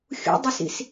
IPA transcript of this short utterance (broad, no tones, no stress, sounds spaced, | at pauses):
xʲ ṵ dˤ ɪ s ḭ s